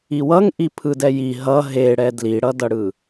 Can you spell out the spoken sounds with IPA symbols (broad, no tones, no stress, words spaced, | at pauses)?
iwʌŋʔi pʰɯdɛji ɦʌ ɦeɽɛ dliɽʌdʌɽɯ